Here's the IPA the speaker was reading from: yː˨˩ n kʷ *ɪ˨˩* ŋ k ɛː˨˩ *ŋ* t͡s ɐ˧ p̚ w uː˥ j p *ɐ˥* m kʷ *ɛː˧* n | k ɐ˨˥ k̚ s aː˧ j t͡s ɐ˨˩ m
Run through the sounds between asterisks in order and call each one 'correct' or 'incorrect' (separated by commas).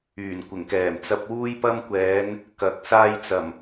correct, incorrect, correct, incorrect